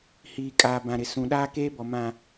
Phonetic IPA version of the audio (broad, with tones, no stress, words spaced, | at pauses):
hiː˨kʼaː˨bã˨ɾɪ˨ sũ˨ɗaː˦ keː˦bɔ˨mã˨